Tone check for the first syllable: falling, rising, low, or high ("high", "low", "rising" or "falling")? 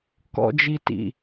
low